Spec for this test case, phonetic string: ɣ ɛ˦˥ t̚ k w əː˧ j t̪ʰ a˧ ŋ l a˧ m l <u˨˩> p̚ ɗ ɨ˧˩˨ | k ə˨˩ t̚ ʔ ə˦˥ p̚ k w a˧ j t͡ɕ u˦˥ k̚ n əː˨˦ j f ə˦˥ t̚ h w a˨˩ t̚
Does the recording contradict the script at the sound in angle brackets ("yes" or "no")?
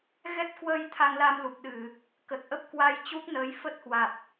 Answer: no